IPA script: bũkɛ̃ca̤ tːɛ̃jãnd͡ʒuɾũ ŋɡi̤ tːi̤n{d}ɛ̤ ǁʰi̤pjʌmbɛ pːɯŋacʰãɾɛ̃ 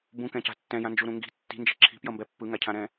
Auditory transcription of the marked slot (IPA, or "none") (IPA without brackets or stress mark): d͡ʒ